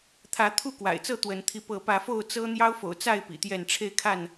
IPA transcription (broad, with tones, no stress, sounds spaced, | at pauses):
t̪ʰ ä˨˦ t̪ʰ u˥˨ k w a̰˨˩ ɪ̯ t͡s ɤ˥˨ t̪ w ə˨˦ n t̪ʰ i˧ p ɤ˨˦ p ä˨˦ f o˥˨ ʊ̯ t͡s ɤ˦ n̪ j ɑ˦ ʊ̯ f o̰˨˩ ʊ̯ t͡s a˥˨ ɪ̯ p ḭ˨˩ t̪ j ɛ˥˨ n ʈ͡ʂʰ e˥˨ ɪ̯ kʰ a˥˨ n